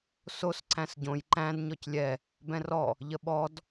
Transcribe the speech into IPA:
s o s ǀ æ̃ s ɟ õ j ǃ æ̃ d ɲ ɔ c lʲ ɛ | b ɛ̃ r ɔ | ʎ ə ɓ ɔ d

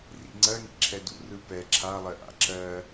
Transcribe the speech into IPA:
r ḭ ŋ͡ǀ ɜ ŋ ḭ ǁʰ ɛ d ṵ r ɯ p ɛ ǁʰ a lˠ ɜ ʔ a̰ ǁ ɜ

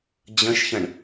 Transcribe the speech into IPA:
d͡ʑ ə̃ ʃ ç ə̃ ɳ

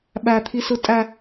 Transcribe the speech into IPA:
ɓ æ t̪ʰ i s ɯ tʼ æ

